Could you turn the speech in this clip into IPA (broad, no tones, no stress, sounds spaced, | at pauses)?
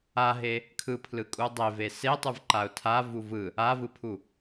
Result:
a ɦ e | kʰ ɯ pʰ l ɯ kʼ u dˤ e v e s e tˤ ɯ v ǃ a ʊ̯ tʰ a v u v ɯ | a v ɯ pʰ u